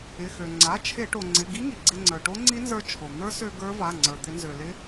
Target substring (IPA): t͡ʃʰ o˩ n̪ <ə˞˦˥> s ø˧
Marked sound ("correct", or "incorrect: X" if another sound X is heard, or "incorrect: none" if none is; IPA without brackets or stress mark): correct